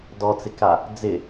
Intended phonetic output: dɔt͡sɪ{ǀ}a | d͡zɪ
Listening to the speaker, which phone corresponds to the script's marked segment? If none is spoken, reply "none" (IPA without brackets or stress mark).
k